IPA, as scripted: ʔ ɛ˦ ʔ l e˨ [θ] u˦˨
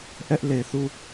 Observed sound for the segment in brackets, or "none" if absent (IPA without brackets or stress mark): θ